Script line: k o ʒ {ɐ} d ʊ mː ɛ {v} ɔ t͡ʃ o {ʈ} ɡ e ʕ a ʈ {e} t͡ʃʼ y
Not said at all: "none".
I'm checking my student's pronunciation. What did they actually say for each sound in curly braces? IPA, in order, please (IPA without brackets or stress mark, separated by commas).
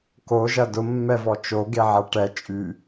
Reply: ɐ, v, none, ɛ